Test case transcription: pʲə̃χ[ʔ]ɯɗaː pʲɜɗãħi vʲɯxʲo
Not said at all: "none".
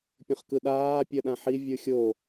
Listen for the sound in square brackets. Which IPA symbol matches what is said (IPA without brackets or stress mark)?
k